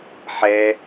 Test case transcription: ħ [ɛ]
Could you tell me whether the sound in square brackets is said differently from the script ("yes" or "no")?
no